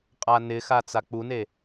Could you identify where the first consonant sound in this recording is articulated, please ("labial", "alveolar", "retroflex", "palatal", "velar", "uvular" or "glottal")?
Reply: uvular